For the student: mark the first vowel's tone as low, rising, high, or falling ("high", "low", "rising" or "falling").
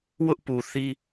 high